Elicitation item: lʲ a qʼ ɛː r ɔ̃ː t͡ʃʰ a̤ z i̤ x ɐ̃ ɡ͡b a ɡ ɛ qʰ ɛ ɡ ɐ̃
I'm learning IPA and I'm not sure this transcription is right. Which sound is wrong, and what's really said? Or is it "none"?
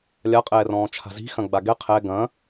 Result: none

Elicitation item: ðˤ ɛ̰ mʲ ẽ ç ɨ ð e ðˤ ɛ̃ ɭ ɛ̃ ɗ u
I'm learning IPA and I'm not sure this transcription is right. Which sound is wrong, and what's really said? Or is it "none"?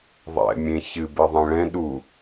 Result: ð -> b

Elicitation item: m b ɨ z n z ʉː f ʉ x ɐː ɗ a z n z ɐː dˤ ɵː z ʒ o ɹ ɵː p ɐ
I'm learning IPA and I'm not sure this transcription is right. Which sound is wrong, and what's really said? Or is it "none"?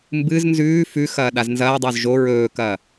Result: p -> k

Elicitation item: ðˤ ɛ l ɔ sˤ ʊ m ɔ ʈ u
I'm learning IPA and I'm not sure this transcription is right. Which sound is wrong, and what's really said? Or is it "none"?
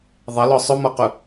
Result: ʈ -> q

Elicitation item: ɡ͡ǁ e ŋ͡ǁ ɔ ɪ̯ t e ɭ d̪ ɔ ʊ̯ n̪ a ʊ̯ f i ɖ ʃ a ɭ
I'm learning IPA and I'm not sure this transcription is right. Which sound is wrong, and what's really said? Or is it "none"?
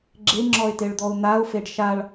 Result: i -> e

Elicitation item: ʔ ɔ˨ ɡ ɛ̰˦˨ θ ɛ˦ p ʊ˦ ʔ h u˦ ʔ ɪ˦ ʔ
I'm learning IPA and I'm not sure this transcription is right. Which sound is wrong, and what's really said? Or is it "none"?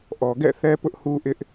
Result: none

